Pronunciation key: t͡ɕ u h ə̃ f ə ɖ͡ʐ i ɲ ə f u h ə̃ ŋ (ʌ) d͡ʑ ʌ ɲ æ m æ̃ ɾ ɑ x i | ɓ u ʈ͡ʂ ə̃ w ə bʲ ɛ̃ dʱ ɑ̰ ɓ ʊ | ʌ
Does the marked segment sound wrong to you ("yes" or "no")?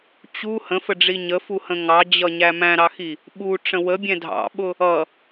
yes